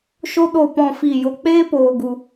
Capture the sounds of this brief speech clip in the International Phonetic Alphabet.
ʃ o˦ ɗ o˦˨ p ɔ̃˦˨ f i˦˨ j o˧ k͡p eː˦ p oː˦ ɡ u˦

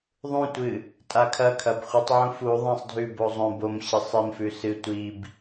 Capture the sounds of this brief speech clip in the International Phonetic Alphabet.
ðˤ ũ tʷ ɨ | tʼ a kʰ ɐ kʰ ɐ b χʷ ɨ tˤ ʕ ũ f u ðˤ ĩ sˤ dʱ ʉ b o zˤ õ b o m ɕ i sˤ i m f ʉ s ɨ tʷ i b

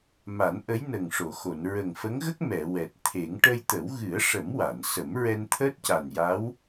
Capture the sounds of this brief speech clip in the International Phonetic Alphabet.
m a˨˩˦ n ʔ ə˧˥ j n ə˨˩ ŋ ʂ o˨˩˨ x o˨˩˨ n ɹ ə˨˩ ŋ f ə˧˥ ŋ ɣ ə˦˥ k̚ m ɛ˨˩˨ w ɛ˨˩ t̚ t̪ʰ e˨˩˦ ŋ ʈ ə˧ j t̪ ə˨˩˦ w ɣ ɨ˨˩˦ ə̯ ʂ ə˨˩˦ m w a˨˩˨ n s ə˨˩˦ m ɹ ɛ˧ n t̪ʰ əː˦˥ t̚ c a˨˩ n j a˧˥ w

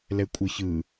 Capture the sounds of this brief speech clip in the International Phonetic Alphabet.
l ɛ kʷʼ ɯ ç ɯ

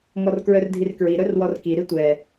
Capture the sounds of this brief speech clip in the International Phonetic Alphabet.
ŋ ɔ r k ɹ œ r dʱ i r k ɹ i ɾ œ r w ɔ r k i ɾ i tʷ ɛ

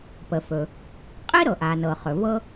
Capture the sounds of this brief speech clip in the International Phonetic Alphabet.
p ə˩ f ɵ˩ | qʼ i˥ ɾ ɤ˩ ʔ a˩ n ɤ˩ χ ɵ˩ v ɤ˥

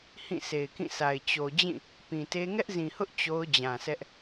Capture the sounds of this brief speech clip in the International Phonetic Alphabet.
h ĩ˦˨ s e˨ ɪ̯ k ĩ˦˨ sʰ a˨ ɪ̯ t͡ɕ o˨ d͡ʑ ĩ˦˨ | p ĩ˨ t e˦ ŋ ɛ˦ ʔ z ĩ˨ h ʊ˦ ʔ t͡ɕ o˦ ʊ̯ d͡ʑ ã˨ sʰ ɛ˦ ʔ

